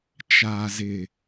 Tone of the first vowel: low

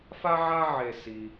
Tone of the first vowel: high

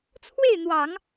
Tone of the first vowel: falling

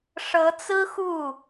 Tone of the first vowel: rising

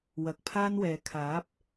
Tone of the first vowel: low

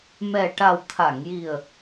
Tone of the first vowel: low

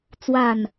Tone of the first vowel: low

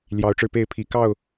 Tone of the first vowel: rising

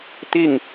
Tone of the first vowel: falling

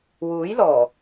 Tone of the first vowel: rising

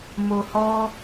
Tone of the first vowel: low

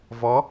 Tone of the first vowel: rising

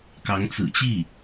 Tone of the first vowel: rising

